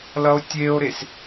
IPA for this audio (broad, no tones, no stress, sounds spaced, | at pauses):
l ʌ o̯ tʲ e o̯ ɾ e s